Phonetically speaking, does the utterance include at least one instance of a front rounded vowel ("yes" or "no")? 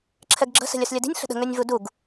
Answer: yes